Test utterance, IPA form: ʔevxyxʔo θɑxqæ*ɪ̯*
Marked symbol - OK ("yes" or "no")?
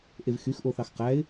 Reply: yes